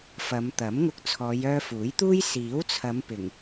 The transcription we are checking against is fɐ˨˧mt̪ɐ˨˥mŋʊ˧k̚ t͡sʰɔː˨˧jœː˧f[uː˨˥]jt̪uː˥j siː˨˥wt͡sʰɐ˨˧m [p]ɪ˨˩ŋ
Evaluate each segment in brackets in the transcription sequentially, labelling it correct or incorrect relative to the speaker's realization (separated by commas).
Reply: correct, correct